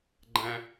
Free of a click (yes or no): no